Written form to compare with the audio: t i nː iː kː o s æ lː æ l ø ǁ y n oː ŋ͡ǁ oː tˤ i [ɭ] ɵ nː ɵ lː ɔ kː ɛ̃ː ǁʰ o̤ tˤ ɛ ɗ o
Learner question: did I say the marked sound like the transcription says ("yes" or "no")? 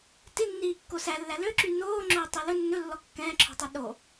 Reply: no